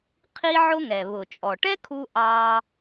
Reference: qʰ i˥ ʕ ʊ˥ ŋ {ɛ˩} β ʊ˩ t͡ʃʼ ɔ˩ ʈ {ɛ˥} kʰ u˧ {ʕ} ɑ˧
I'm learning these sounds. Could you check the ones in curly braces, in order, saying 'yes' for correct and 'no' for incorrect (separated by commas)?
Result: yes, yes, no